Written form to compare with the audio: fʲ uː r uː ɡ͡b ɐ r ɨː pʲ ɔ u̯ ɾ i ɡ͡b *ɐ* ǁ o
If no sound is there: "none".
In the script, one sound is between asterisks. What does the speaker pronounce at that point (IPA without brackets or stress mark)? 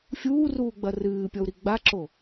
a